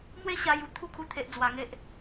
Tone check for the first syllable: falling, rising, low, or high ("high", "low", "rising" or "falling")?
high